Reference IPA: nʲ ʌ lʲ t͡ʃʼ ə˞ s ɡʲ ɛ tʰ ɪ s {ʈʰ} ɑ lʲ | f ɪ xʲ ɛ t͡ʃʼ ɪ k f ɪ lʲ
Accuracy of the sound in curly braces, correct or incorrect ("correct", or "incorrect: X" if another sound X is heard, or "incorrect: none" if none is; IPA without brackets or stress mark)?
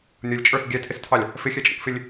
incorrect: tʰ